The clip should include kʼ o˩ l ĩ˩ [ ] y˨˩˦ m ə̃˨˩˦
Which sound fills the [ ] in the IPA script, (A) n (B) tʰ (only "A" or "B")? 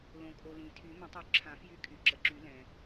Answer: B